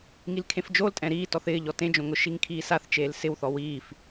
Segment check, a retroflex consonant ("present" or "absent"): absent